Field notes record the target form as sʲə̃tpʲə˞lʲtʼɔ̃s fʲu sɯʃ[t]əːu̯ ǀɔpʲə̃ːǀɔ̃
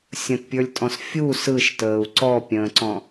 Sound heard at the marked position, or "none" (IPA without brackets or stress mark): t